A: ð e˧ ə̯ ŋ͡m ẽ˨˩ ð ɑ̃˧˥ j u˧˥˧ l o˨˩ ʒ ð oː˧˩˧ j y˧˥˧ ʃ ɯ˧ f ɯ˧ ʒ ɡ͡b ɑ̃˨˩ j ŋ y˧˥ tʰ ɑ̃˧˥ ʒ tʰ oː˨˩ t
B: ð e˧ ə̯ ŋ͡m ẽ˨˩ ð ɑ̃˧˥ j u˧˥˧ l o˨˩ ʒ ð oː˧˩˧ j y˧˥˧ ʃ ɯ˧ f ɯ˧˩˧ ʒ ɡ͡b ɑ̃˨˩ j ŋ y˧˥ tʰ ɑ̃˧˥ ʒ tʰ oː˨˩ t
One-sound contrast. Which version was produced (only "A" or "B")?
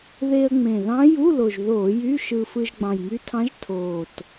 A